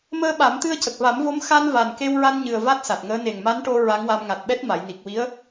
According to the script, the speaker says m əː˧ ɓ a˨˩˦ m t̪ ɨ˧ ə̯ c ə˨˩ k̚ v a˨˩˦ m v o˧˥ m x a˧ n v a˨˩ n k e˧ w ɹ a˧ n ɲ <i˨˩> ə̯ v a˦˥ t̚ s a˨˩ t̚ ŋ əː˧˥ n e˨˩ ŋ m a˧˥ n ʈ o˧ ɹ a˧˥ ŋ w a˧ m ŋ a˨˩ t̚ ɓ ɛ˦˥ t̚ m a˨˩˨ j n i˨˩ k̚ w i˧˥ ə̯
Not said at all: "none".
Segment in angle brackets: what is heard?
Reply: ɨ˨˩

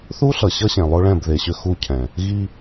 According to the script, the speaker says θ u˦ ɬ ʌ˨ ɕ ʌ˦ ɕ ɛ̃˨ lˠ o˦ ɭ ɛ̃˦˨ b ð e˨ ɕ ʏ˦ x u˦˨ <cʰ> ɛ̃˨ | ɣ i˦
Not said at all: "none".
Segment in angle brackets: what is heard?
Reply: cʰ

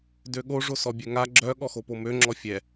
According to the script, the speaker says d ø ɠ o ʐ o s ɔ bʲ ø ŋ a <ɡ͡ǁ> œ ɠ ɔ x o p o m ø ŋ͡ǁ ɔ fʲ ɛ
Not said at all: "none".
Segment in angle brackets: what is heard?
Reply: ɡ͡ǁ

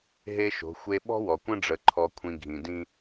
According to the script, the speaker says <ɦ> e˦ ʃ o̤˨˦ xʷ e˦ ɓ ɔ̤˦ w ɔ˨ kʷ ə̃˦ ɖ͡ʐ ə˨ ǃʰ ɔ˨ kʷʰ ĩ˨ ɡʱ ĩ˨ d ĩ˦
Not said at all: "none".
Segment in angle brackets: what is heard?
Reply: ɦ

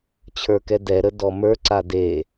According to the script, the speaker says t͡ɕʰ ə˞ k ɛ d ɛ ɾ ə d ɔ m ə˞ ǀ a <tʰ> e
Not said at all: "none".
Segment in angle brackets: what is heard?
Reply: d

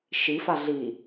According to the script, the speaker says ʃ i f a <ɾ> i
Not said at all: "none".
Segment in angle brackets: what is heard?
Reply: ɮ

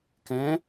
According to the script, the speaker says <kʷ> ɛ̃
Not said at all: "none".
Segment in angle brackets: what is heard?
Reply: k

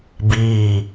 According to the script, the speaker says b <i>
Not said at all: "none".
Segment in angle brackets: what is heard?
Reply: iː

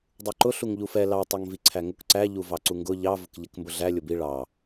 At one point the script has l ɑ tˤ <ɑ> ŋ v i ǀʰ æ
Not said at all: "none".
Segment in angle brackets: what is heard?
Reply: ɑ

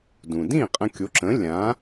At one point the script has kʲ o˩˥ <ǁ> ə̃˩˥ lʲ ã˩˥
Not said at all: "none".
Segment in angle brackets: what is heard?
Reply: ǁ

